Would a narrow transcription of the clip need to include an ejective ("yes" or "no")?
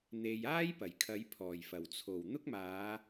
no